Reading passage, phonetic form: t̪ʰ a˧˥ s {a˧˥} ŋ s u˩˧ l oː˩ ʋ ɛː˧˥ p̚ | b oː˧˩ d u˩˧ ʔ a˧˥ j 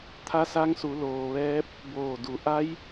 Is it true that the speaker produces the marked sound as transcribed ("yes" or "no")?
yes